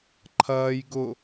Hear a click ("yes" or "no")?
yes